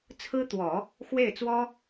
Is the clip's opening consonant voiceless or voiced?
voiceless